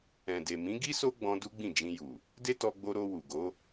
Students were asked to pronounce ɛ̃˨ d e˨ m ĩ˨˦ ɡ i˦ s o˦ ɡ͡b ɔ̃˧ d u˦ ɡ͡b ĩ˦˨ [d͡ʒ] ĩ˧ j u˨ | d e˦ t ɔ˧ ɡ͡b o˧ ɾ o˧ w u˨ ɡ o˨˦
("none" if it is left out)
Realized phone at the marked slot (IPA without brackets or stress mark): d͡ʒ